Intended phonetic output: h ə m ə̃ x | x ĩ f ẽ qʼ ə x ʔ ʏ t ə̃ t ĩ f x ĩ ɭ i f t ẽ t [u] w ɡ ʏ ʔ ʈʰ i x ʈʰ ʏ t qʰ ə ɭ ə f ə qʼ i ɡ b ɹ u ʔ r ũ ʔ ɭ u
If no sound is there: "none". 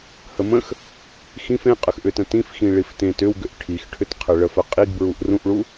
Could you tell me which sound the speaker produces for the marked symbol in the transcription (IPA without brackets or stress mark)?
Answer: ʏ